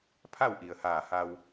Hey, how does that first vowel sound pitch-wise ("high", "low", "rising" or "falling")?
falling